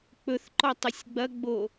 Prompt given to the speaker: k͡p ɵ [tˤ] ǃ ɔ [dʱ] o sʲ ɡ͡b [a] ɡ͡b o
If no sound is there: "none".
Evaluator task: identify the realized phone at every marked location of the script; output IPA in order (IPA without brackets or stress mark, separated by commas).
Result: θ, tˤ, ɐ